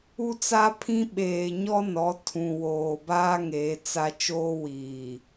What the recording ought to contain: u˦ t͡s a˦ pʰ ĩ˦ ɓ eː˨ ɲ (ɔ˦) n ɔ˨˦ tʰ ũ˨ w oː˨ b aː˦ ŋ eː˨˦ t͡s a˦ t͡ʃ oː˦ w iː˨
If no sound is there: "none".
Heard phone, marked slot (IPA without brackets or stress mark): ɔ˦